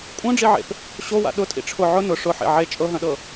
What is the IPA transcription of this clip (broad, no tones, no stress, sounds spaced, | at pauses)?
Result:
kʷʼ œ̃ ɖ͡ʐ i ʕ ḛ p | ɕ o w a̰ ɗ ʊ tʼ ḭ ʈ͡ʂʰ ʊ ʕ ʊ n ʊ ʂ ʊ ħ ḛ ʕ e t͡ʃʼ ɤ ɦ œ̃ ɗ ɤ